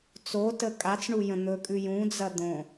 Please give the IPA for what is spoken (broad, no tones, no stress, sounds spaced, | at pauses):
t͡s o t ə kʼ a t͡s ɳ u j ə̃ n̪ ɵ kʼ ʉ j ũ d͡z ɐ d̪ õ